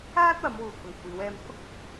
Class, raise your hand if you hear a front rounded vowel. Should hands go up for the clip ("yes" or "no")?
no